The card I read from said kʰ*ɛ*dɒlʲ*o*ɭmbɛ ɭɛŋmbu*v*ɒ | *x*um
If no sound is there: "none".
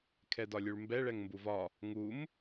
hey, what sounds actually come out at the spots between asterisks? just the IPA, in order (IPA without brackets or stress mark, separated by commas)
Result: ɛ, u, v, ŋ